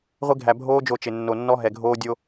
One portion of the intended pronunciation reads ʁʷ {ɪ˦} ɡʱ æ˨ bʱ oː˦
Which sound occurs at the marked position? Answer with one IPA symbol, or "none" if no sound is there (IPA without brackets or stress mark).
ɪ˦